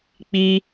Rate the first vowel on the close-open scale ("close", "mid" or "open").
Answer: close